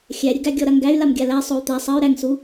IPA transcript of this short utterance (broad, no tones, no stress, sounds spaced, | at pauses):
xʲ æ ɾʲ ə ɡ æ ɡʲ ɔ ɾ a ŋ ɡ æ y̯ l a m ɡʲ a l æ sˤ o y̯ t̪ æ sˤ ɜ y̯ ɾ æ ŋ s u